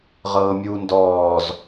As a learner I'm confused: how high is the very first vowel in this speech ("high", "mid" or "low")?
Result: mid